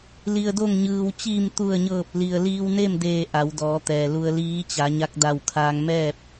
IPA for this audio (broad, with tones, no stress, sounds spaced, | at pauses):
l i˩ ə̯ d o˧˩ ŋ ɲ ɯː˩ w t͡ɕ iː˧˩ m t̪ u˧˩ ə̯ ɲ ɤː˧˩ p̚ l i˩ ə̯ l iː˧ w n e˥˨ m d eː˧˩ ʔ a˩˧ w d ɔː˩˧ t̪ ɛː˩ l u˧ ə̯ l iː˧˥ t͡ɕ a˩˧ ɲ a˧ k̚ d a˧˩ w kʰ aː˧ ŋ m ɛː˥˨ p̚